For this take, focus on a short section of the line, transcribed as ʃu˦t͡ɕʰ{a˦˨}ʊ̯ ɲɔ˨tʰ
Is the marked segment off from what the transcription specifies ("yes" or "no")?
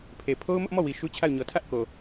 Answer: no